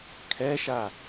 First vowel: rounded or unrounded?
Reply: unrounded